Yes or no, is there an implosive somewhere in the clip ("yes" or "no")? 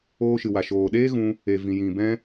yes